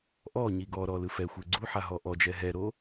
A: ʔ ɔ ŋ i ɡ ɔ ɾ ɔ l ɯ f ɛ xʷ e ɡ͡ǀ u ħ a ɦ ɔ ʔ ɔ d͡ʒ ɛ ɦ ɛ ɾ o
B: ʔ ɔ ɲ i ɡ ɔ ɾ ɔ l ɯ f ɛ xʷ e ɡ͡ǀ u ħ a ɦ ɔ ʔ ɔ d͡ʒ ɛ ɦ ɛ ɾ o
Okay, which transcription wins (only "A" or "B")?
B